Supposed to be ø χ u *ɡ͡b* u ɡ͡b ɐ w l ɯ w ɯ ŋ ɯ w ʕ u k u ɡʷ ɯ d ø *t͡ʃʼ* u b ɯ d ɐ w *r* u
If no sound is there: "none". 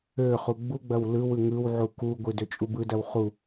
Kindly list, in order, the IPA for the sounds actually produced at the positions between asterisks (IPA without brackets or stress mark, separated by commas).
ɡ͡b, t͡ʃʼ, χ